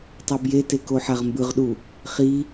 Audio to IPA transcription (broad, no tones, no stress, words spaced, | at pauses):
tˤɛbjete koħaʁmbɯʁɗu | χi